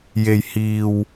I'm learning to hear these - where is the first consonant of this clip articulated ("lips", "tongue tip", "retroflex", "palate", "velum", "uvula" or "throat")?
palate